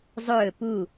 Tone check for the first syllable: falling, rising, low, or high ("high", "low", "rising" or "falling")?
falling